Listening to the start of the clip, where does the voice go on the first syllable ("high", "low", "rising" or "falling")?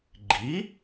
rising